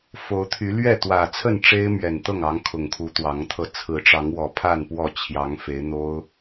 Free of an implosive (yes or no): yes